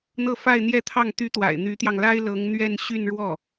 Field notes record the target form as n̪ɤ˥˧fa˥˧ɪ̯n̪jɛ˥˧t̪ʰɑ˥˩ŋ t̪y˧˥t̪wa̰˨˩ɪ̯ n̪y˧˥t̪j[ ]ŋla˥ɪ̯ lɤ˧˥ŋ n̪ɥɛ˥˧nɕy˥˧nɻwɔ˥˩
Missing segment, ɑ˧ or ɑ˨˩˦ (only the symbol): ɑ˧